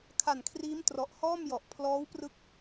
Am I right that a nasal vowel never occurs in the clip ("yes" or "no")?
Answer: yes